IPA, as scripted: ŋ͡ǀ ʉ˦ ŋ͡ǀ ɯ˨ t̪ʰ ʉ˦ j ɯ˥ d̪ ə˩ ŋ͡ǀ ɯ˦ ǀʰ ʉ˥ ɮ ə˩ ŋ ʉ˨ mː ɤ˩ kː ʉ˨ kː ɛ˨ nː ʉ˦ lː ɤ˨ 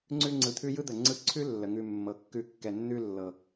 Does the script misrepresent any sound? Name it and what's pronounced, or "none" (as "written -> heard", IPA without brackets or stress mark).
ɮ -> lː